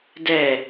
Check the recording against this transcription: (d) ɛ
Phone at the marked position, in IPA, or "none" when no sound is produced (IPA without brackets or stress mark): d